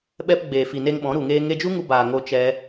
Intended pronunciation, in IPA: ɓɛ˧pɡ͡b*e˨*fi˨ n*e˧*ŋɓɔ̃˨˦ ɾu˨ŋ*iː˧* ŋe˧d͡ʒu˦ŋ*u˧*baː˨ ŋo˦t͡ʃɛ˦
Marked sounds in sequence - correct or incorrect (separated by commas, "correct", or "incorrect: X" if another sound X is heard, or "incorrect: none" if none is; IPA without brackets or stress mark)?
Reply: incorrect: eː˨, correct, incorrect: eː˧, correct